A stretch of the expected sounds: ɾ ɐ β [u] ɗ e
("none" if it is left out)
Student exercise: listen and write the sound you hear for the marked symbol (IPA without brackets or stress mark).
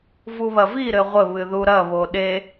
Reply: o